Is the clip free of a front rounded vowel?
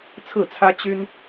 no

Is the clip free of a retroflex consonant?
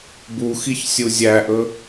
yes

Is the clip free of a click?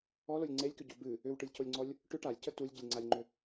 no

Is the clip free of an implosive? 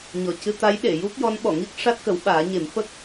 no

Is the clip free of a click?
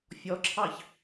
no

